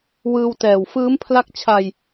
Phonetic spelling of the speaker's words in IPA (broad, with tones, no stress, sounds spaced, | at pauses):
w ɯː˧ w t ɛː˨˩ w f ɯː˦˥ m pʰ l a˦˥ k̚ t͡ɕʰ a˧ j